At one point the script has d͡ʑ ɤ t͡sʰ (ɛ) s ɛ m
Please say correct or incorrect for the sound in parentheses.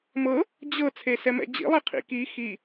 incorrect